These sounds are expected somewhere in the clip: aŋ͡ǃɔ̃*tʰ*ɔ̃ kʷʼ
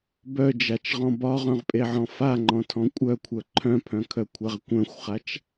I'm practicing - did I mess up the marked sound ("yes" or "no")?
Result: no